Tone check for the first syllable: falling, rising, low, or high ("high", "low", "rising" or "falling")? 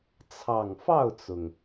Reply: low